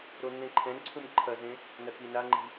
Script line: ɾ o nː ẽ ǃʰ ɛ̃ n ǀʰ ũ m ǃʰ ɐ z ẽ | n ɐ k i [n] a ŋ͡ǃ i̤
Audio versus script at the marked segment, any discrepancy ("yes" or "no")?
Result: no